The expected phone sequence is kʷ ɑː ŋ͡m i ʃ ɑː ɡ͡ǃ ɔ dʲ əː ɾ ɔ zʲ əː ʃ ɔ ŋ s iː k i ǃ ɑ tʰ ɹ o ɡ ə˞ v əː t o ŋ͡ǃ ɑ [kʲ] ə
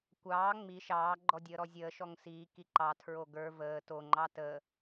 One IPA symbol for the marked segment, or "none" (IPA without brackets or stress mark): t